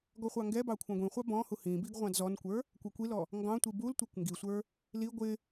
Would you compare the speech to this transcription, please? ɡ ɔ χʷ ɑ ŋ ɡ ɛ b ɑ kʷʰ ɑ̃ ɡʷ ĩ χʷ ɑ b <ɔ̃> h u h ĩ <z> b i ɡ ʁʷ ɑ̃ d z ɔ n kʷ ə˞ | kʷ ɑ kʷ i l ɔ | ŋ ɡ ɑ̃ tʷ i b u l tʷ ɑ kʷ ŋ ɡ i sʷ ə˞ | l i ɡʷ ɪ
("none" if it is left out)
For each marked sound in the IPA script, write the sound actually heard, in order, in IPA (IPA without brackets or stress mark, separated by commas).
ɔ̃, none